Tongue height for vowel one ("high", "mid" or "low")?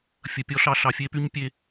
mid